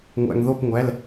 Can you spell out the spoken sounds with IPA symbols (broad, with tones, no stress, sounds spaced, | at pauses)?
ŋʷ æ̰˩ ŋ ð o˧˩ p ŋʷ æ˩˧˩ l